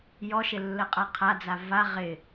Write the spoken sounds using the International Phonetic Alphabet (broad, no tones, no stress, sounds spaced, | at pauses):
j ɔ ʃ ɪ lː ə qʼ a qʰ a d͡z a v a ʁ ɪ